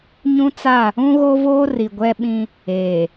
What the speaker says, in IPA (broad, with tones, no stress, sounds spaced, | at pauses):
ɲ ũ˦ t͡s a˦˨ | ũ˦ ɣ o˦ v oː˦ r i˨ ɡʷ ɛ˦ ɓ ĩ˦ | eː˨